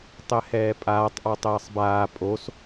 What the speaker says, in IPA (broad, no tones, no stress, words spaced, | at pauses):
tˤɛhɛːpʼaːtˤ ʔɔtˤɛːsˤbaː pʼos